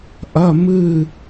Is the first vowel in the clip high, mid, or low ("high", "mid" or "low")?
low